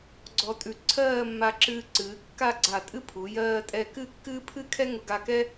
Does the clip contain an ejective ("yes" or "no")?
yes